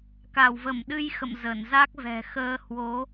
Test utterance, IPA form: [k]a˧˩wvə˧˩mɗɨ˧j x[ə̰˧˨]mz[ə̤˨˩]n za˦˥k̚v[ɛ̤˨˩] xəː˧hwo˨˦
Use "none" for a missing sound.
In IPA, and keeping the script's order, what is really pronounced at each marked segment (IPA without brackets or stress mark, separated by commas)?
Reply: k, ə̰˧˨, ə˧˩, ɛ̤˨˩